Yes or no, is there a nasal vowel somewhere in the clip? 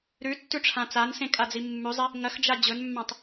yes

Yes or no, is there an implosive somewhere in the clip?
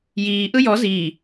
no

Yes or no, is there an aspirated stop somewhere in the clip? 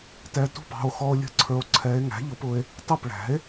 yes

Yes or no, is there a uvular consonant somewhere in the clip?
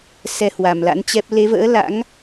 no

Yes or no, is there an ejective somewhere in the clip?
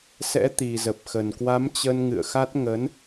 no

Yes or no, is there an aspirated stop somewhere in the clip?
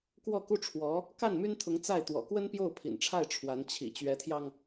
yes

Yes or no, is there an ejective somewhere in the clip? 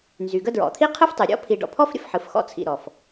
no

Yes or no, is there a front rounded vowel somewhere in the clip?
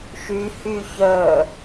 yes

